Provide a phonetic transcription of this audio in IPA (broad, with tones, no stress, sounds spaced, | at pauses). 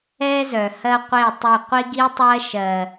ɛ˦ z œ˨ h ɜ˦ qʷ e˦˨ tˤ ʏ˦˨ qʷ i˦ ɡ i˦ tˤ ɜ˦ ʃ ɜ˨